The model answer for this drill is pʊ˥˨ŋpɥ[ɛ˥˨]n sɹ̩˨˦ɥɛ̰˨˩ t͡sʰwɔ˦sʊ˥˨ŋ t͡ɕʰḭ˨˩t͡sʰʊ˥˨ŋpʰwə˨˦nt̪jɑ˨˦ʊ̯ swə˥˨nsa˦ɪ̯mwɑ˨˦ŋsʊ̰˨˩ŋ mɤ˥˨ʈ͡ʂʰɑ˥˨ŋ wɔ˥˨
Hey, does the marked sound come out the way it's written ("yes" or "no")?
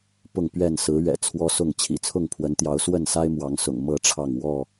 yes